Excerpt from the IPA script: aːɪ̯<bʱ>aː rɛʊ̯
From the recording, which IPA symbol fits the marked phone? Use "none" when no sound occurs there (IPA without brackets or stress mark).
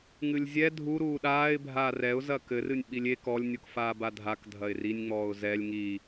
bʱ